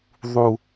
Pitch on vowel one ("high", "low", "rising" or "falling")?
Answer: high